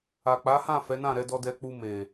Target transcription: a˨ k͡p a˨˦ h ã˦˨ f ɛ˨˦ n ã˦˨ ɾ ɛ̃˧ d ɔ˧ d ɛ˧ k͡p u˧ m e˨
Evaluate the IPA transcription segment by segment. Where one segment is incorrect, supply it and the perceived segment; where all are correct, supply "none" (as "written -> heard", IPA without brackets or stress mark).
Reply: ɛ̃˧ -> ɛ˧